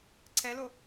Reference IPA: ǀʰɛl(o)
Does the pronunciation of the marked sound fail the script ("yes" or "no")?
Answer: no